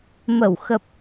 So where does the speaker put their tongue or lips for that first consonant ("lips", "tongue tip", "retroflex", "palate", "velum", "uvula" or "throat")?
lips